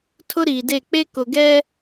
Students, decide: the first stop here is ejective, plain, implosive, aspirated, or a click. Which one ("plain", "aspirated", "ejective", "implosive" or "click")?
aspirated